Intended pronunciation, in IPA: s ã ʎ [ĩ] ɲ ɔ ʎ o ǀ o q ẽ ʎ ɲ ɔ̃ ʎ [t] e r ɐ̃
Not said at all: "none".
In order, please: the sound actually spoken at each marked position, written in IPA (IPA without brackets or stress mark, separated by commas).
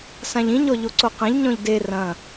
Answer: ĩ, d